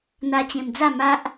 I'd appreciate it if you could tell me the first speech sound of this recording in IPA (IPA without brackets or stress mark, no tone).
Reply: n̪